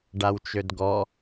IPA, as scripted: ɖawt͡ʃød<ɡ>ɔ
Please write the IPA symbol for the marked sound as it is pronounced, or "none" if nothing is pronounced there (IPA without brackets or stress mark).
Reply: ɡ